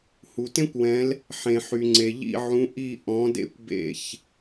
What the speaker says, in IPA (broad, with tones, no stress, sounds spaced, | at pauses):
h u˩ t ẽ˥ kʷ w ɛ̃˨˦ l | ħ ẽ˩ ħ y˩ ŋ͡ǀ e˩ ʎ ḭ˦˨ ʕ ũ˨˦ ʔ i˦˨ ʔ ɔ̃˨˦ d ḛ˥ kʷ b ḛ˦˨ ç